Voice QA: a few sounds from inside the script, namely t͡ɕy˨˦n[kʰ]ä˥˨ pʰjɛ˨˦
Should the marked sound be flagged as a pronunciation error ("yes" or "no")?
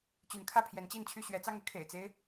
no